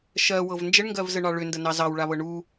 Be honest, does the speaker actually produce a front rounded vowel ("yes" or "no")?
yes